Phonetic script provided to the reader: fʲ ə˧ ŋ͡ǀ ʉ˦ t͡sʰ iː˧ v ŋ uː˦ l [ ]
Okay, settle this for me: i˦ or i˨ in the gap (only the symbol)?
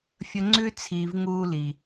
i˨